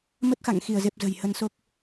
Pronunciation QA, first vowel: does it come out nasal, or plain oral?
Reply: oral